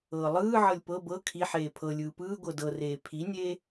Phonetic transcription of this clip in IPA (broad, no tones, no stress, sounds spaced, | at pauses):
ɤː lˠ ɯː ʕ ɤ lʲ p ɤ b ɤ kʰ i ħ eː pʰ ɤ lʲ ɯː p ɯː ɡʷ ɤ d ɤ r eː pʰ i nʲ eː